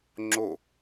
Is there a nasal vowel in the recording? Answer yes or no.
no